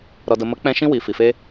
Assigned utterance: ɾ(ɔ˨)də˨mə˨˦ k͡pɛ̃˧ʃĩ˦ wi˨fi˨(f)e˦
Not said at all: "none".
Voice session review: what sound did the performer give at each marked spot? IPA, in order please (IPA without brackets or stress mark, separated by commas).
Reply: ɔ˨, f